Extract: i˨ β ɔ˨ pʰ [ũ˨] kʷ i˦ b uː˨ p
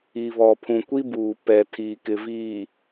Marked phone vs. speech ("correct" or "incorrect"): correct